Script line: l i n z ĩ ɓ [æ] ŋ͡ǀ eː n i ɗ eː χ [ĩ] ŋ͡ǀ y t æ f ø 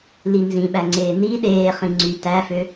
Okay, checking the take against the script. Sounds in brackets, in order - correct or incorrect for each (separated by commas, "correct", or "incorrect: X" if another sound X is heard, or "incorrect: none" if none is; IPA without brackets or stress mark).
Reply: correct, correct